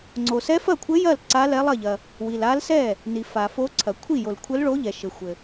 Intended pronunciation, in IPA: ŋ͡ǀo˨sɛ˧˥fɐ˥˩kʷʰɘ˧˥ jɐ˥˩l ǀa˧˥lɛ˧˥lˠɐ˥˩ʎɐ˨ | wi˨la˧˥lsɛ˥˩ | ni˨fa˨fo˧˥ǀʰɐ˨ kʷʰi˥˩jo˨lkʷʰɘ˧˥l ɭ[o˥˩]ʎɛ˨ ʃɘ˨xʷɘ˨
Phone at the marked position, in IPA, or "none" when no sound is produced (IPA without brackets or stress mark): o˧˥